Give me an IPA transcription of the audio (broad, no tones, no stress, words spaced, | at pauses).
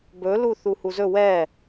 bɵlu θuhuzɵ wɛ